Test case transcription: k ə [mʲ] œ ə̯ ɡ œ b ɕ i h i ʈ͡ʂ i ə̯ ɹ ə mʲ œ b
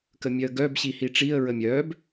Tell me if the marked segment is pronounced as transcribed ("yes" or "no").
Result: yes